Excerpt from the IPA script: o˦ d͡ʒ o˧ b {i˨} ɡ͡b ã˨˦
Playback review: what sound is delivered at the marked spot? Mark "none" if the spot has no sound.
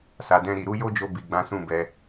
i˨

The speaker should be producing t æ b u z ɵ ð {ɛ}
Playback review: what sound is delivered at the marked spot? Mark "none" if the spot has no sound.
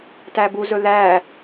æ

